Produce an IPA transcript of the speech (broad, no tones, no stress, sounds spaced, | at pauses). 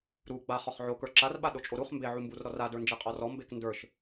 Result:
ɾ u ɡ͡b a χ ɔ χ ʕ o k ə˞ ǁ a r ɓ a ɗ o t͡ʃʼ o ɾ u χ m b e ʕ u m b u r ɾ ɔ r a d ə˞ n d͡ʒ i qʼ ɔ r ɔ m b e k n d ə˞ ʃ